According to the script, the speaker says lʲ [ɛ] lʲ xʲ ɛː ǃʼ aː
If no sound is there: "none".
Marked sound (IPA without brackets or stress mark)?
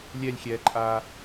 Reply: ɛ